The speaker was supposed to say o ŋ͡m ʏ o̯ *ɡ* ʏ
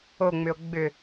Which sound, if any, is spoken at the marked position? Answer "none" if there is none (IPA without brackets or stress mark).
ɡ͡b